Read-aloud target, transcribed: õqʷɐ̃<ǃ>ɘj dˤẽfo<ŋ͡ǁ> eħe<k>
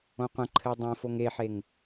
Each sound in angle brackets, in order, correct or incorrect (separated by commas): incorrect, incorrect, incorrect